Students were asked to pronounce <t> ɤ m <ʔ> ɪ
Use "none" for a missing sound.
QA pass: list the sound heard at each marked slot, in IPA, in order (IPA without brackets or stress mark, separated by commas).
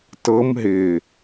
t, ɦ